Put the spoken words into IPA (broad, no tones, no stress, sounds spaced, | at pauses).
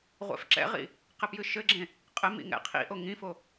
ʁʷ ɛ̰ f ǁ ɛ̰ ʁ ḭ | q ɘ p j ɨ ʃ ɘ ɡ͡ǁ ẽ | qʼ ɘ m ḭ ŋ ɛ̰ qʰ ḭ ʔ o ŋ ĩ f o